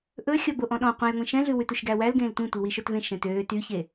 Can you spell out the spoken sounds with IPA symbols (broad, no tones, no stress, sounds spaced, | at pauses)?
ʔ ɵ xʲ ɔ b o ʔ ɔ̃ ɗ ɔ̃ qʷ ẽ j ŋʷ ĩ ʃ ɛ̃ ɮ ʉ w ʉ t u ʃ ɡ æ w æ l ɡ ẽː l tʷ ĩ tʷ i w i ʃ o t v ẽ ʃ ɛ̃ t øː t yː ç e